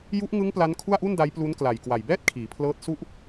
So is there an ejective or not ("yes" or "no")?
no